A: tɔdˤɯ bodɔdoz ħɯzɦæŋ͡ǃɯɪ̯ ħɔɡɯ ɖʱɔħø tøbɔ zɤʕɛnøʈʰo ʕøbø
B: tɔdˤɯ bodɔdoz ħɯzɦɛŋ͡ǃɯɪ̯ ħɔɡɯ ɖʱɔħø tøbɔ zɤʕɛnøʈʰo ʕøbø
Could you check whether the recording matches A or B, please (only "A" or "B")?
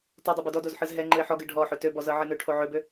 B